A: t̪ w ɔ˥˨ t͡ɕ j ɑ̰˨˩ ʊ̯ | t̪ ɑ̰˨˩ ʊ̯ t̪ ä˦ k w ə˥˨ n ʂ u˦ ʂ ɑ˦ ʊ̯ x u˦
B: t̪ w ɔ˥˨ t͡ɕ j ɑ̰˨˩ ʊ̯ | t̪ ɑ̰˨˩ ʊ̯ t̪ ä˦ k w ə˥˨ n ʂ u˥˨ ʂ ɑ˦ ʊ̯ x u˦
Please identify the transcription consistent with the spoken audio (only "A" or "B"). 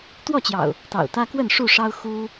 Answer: B